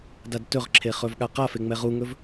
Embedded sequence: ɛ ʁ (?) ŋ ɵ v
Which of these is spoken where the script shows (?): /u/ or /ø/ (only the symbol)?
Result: u